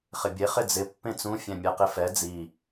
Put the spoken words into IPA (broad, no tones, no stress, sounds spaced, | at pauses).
χ ɪ bʲ e χ ɪ d͡z ɪ pː ẽ t͡s ũ fʲ ɛ̃ mʲ ɛ q ɪ f ɛ d͡z i